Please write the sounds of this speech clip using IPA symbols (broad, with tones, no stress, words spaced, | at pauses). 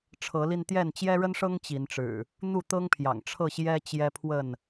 ʈ͡ʂʰɤ˨˦li˧n t̪jɛ˥˨n t͡ɕjɛ˦ɻə˦nʂɤ˦ŋ t͡ɕi˨˦nʈ͡ʂɻ̩˨˩ | n̪u˥˨t̪ɤ˦ŋpʰjɑ̰˨˩ŋ ʈ͡ʂʰɤ˥˨ɕjɛ˦ t͡ɕjɛ˦pʰwə˥˨n